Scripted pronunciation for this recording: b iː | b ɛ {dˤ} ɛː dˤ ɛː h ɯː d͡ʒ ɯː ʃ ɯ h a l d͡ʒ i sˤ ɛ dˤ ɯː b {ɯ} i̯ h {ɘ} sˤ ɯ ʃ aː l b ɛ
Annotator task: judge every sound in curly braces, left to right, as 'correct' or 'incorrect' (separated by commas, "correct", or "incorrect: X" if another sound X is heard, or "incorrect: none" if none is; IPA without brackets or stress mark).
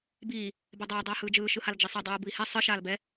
correct, correct, incorrect: ɛ